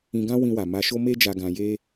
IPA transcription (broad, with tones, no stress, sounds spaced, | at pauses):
ĩ˧ ɡ ã˦ w ĩ˧ w a˨ m a˧ ʃ o˦ m e˦ d͡ʒ a˧ ɡ ã˧ j e˦